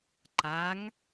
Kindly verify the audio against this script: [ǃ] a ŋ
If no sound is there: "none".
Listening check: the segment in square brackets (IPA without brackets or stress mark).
ǃ